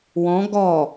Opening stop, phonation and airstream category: plain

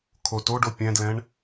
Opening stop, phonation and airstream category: aspirated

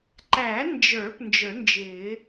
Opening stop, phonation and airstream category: click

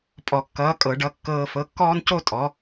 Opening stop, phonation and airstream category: ejective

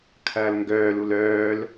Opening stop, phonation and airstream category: aspirated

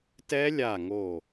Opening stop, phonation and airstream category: plain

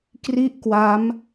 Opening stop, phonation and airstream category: plain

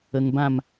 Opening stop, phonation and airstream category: plain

